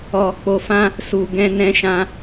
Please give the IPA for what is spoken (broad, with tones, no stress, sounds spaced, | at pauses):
ɔ˧ k͡p o˧ f ã˦ | s u˧ ɡ ɛ̃˦ n ɛ̃˦ ʃ ã˦